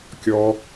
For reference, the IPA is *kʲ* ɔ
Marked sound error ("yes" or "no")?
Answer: no